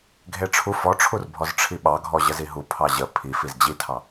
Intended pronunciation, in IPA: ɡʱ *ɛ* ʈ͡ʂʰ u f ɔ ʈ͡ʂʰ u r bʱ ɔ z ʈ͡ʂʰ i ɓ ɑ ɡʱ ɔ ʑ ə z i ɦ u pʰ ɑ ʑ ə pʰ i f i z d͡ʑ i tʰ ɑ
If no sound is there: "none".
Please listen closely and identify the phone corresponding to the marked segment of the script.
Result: e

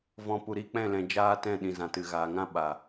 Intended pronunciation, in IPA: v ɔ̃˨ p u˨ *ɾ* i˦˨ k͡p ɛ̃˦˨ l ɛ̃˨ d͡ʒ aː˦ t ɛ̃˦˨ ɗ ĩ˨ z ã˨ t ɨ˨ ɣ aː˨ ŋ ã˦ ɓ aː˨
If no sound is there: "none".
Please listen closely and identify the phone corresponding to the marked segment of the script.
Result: ɾ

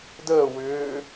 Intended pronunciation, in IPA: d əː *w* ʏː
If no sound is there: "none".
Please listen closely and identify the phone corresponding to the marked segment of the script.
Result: w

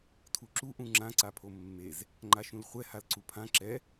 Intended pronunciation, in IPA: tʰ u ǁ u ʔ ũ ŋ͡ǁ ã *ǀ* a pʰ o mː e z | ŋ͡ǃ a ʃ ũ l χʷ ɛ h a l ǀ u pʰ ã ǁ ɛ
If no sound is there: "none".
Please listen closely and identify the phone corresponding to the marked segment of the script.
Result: ǀ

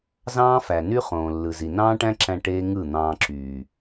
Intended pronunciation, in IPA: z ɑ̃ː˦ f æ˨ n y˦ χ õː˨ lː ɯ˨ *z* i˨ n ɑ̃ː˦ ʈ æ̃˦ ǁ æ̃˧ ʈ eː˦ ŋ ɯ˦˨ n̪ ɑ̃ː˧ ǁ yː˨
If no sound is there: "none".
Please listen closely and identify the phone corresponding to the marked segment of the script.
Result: z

